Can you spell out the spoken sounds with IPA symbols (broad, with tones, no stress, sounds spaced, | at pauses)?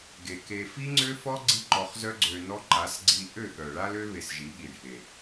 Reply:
ɡ e˨ k e˧ f i˦ ŋ͡ǀ ø˦ f ɔ˦ ɡ͡ǀ i˦ ǃ ɔ˧ χ z œ˦ ɡ͡ǀ ø˧ n ɔ˦ ǃ a˨˦ s ɡ͡ǀ i˧ ʔ ø˦˨ ɠ œ˨ ɭ a˦ l ø˦ β e˧ s ʒ i˨˦ ɠ i˨ ɖʱ e˨